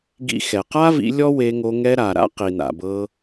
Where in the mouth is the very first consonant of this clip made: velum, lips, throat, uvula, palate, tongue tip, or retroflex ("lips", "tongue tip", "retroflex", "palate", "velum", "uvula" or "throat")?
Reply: velum